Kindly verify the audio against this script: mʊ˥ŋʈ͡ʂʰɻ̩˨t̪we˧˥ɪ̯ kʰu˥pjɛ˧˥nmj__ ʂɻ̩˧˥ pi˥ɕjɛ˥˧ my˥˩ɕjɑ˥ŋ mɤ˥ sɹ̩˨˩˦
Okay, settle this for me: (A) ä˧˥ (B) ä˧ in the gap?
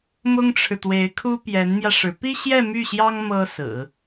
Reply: B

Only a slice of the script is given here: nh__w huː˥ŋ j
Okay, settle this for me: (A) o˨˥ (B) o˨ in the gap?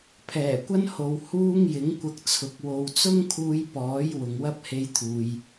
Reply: B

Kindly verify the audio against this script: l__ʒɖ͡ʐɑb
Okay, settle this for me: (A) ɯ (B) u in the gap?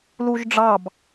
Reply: B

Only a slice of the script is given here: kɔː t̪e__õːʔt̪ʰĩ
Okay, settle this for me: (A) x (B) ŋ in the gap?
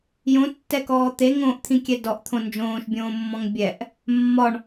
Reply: B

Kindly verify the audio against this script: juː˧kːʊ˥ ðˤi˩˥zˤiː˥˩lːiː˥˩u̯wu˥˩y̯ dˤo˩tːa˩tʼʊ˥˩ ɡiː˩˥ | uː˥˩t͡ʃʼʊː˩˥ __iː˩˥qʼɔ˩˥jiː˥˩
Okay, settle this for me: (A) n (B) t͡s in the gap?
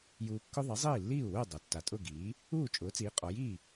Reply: B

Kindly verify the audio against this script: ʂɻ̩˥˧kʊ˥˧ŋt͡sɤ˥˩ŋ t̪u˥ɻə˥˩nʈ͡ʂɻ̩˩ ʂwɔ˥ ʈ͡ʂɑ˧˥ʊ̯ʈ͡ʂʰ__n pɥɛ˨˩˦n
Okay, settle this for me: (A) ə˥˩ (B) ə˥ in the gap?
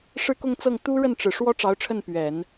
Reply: A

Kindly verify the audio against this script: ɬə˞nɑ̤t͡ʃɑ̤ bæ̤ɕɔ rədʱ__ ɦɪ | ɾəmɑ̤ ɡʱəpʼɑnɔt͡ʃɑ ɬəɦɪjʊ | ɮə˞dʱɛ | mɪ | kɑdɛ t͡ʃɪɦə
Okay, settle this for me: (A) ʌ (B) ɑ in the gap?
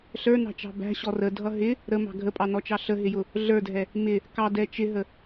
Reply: A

